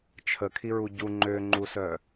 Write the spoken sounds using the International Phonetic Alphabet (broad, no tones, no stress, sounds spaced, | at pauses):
t͡ʃʰ ə kʰ i ɹ u ɟ u ŋ͡ǃ ø ŋ͡ǃ u s œ